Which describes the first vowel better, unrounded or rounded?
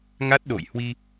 unrounded